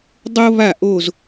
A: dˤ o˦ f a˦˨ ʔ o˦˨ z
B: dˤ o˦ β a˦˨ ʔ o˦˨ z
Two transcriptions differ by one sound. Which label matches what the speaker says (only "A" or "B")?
B